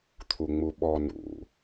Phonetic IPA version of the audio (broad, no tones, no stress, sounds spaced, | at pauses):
t̪ʰ u ŋ͡m u ɓ ɔ n ṵ